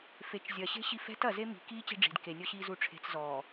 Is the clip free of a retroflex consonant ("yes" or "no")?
no